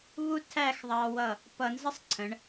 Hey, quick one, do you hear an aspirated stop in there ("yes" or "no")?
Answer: yes